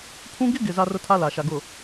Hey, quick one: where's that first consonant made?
lips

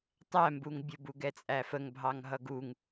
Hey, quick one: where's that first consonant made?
tongue tip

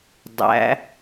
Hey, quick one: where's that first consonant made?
tongue tip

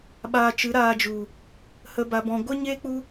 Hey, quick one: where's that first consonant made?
lips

